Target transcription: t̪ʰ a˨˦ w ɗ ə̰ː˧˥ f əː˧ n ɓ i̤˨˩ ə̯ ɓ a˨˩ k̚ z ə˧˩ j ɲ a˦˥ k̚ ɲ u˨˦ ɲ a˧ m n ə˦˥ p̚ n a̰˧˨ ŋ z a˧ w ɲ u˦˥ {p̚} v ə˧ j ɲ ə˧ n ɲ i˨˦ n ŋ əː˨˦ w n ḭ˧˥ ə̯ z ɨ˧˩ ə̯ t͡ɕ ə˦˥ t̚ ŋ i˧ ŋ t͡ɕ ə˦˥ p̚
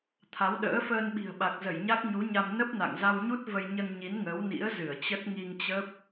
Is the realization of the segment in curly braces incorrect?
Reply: yes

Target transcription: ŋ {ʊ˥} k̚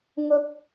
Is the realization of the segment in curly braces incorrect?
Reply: yes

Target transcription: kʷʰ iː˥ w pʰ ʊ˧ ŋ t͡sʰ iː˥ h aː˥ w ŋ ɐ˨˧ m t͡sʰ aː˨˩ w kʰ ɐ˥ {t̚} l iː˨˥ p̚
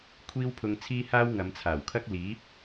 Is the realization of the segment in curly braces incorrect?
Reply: yes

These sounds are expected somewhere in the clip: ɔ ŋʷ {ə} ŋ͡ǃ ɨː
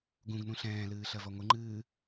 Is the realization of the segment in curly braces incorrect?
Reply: yes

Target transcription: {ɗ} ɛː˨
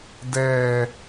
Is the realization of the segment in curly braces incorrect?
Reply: yes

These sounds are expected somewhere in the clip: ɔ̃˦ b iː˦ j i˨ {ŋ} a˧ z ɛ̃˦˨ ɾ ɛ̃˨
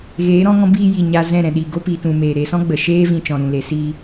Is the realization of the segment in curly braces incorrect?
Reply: yes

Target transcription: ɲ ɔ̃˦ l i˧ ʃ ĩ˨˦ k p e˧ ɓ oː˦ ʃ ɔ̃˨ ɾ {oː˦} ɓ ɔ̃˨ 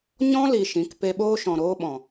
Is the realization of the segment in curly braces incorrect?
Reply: no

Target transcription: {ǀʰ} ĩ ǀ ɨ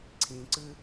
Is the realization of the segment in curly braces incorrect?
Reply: no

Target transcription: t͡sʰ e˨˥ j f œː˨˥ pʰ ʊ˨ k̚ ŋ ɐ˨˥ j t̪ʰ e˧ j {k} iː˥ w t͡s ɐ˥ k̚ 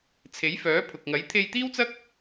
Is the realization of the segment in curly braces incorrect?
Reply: yes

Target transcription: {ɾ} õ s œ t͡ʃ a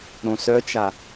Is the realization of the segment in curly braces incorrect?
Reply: no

